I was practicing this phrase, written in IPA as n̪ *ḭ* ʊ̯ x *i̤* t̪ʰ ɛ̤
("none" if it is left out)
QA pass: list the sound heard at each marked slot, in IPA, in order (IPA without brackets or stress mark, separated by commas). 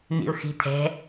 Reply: ḭ, i̤